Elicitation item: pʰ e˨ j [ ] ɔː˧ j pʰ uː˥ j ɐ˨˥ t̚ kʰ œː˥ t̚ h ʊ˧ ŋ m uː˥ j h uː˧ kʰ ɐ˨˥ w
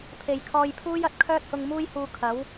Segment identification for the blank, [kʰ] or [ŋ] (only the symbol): kʰ